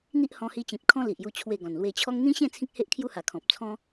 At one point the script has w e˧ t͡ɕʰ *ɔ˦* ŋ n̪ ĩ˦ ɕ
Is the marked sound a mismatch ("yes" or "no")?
no